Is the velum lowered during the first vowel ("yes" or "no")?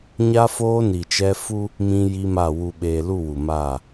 no